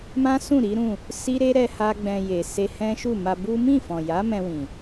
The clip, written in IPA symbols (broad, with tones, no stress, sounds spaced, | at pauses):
m ã˦ s ũ˦˨ ɾ i˨˦ ɾ ũ˦˨ | s i˦ ɾ e˦ ɾ ɛ˦ h a˦ ɡ͡b ɛ̃˧ j e˨ s e˧ h ɛ̃˦ ʃ u˦˨ m a˧ b u˦ m ĩ˦˨ f ɔ̃˨ j a˨˦ m ɛ̃˧ w ĩ˨